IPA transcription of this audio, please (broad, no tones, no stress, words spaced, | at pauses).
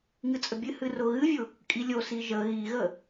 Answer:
ŋɨt͡sʼəbʲɨhɨ rʊɣɨvʲʊ | kʼilʲosi ʒə ɣiɣə